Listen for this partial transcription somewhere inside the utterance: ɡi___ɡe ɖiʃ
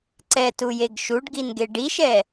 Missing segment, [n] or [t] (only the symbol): n